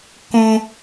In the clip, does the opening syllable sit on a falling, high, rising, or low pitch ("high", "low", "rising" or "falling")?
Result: high